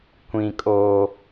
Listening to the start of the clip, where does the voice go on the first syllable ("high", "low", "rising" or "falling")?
high